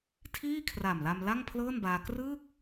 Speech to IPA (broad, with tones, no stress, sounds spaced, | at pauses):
tʰ iː˥˩ kʰ r a˨˩ m l a˧ m l a˥˩ ŋ pʰ l ɤː˥˩ n b aː˧ k r ɯː˥˩ k̚